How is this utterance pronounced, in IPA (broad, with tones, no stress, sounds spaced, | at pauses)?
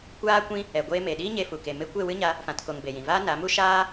kʷ aː˦ kʷ ĩ˦ | ɛ˨ ɡʷ eː˧ m e˨ ɗ iː˦ ɲ e˧ f u˨ k e˨ m e˦ kʷ e˦˨ w ɨ˦ ɲ a˧ | f ã˧ t k o˧ ŋ b e˨ j ĩ˨ v aː˦ n a˨˦ m u˦ ʃ aː˦